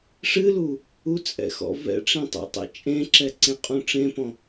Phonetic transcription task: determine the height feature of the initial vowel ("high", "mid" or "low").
high